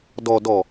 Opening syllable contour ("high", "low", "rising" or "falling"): low